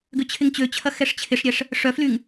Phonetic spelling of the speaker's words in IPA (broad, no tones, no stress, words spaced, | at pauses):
ɡʏt͡ɕʰɪŋt͡ɕøt͡ɕʰɐ xɛʂt͡ɕʰɪʂɾʲɛʂ | ʂœflyŋ